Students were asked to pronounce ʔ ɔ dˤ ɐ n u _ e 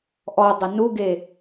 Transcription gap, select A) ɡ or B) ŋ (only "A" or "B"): A